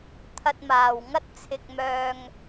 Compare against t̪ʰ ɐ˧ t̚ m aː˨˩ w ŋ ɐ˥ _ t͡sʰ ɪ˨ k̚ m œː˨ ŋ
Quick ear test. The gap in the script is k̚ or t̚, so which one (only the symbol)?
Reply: t̚